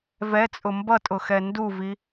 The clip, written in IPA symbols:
v ɛ t͡sʼ ʊ m b ʌ tʼ ʊ x ɛ n d u v i

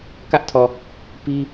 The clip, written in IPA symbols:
k ä˦ ʔ tʰ ɔ˨ | p i˦

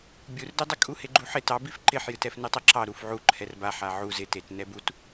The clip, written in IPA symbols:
bʲ u r d e dˤ ɪ kʼ u h e ɡ͡ǃ u ħ ɪ t ɑ b i f ǃ ɪ ħ j ɨ t ɛ f n ɨ tˤ e ǁ ɑ ɾ u f ʕ u ǃʰ ɛ r b a ħ a ʕ u z ɪ t e t n ɛ b u t

